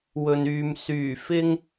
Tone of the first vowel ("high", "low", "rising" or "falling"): low